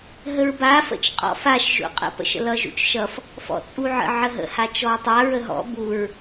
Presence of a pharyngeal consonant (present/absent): present